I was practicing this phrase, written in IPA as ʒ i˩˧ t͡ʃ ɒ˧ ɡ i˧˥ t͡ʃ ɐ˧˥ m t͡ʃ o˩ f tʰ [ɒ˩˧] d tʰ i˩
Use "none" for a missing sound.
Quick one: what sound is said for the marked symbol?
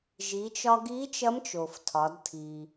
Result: ɒ˩˧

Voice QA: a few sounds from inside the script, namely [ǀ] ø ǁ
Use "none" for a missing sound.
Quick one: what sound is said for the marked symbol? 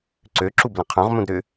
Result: ǀ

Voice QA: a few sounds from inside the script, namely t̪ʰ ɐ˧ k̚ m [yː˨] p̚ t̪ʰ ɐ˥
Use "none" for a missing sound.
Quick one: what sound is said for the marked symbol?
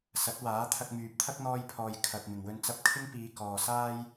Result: yː˨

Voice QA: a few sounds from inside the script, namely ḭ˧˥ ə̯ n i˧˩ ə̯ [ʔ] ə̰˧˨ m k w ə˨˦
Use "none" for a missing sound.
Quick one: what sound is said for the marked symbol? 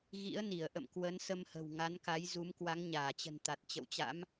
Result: ʔ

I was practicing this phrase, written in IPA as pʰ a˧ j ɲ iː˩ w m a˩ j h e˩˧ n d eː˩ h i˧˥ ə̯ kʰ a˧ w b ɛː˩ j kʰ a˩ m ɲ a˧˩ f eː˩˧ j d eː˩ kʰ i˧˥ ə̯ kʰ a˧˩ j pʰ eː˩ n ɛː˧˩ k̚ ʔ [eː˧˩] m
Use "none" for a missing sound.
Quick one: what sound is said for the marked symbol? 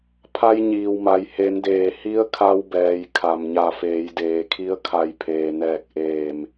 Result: eː˧˩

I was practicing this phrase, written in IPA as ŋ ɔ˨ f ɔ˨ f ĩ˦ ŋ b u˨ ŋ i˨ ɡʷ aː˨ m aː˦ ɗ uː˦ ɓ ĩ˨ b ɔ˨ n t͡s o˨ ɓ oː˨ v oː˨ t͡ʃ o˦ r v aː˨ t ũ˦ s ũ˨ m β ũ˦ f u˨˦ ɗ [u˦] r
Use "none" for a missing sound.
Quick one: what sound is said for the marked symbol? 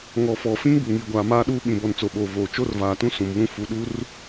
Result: u˦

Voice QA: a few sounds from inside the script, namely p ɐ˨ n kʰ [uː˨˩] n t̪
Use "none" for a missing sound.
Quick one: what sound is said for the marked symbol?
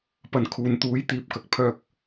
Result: uː˨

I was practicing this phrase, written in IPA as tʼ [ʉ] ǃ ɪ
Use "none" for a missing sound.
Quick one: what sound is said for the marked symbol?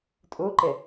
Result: u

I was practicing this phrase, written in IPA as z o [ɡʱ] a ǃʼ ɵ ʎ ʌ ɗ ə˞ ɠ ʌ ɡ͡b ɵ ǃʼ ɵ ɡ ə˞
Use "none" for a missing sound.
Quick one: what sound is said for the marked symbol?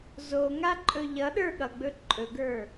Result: ŋ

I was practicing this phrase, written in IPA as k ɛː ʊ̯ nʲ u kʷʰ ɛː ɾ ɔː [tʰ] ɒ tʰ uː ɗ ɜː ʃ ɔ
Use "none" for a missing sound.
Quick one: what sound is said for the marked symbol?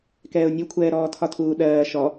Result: tʰ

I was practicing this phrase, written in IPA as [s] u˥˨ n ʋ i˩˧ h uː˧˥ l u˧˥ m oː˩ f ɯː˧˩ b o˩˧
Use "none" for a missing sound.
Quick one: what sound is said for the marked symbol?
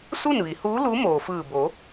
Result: s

